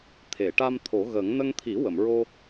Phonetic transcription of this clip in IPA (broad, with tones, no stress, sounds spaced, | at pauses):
t̪ʰ e˨˩˨ ʈ a˧ m t̪ʰ o˨˩˦ ɣ ə˨˩˦ ŋ n ə˧ ŋ t̪ʰ i˨˩˦ w ə˨˩˨ m ɹ o˧